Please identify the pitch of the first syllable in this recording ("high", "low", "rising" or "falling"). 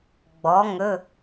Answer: rising